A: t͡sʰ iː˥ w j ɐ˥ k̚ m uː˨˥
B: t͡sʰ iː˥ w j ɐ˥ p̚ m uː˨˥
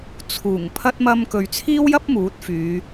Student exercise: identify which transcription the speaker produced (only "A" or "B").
B